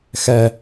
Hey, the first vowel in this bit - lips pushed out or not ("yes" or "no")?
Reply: no